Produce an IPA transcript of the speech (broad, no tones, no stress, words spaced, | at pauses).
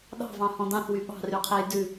ɗɑ̤vɑ̃hɔ̃ dɑ̃θwy ɓɑ̤ryqʰej dʉ